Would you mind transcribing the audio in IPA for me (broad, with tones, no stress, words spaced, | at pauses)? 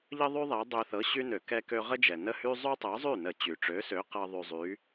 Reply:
ʎə˥ðˤy˥ ðˤe˨˥ dˤø˧θɤ˨˥ ɕy˥ nø˧˩˧kɛ˥kø˥ ʁə˥d͡ʒɛ˩nə˥˩hy˥ zˤy˥tˤɤ˨˥zˤy˥˩nə˧˩˧ t͡ɕy˩ʈ͡ʂø˨˥sø˨˥qɤ˧ ðˤy˧ zˤy˨˥